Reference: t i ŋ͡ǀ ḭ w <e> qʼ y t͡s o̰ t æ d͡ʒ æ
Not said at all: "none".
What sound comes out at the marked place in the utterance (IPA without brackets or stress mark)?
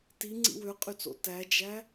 ø